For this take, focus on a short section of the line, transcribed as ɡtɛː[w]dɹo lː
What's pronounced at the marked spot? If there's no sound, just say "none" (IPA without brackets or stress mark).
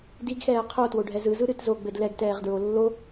ʁ